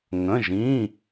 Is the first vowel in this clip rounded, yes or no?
no